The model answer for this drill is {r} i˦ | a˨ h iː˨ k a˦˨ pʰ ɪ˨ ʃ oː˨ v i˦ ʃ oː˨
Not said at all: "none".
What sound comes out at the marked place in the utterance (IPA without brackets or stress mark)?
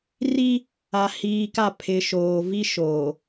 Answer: r